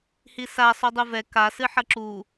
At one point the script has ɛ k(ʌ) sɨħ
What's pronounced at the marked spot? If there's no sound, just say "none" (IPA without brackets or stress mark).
a